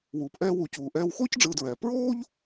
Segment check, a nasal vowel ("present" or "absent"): absent